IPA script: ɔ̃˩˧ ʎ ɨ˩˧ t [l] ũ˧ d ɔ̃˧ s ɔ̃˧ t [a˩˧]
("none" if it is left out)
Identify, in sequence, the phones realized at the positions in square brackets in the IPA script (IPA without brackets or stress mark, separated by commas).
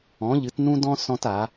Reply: n, a˩˧